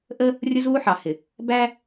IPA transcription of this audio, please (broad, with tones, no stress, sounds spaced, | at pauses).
ʔ ə˦ | rʲ ʊ˦ z uː˦ ħ ɑ˨ h ɪ˨ | b æ˦